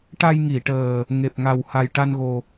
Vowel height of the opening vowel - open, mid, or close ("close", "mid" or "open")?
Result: open